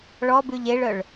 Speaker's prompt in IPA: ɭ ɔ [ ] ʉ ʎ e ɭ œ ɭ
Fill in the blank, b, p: b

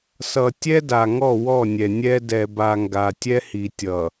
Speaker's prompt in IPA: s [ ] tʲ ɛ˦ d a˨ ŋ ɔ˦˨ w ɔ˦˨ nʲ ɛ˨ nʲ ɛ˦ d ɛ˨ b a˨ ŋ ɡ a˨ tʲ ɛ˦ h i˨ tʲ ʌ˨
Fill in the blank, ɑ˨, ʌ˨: ʌ˨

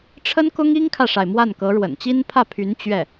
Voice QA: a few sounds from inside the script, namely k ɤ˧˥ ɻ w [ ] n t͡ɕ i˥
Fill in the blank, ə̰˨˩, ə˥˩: ə̰˨˩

